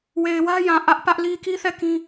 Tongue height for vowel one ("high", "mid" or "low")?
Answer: mid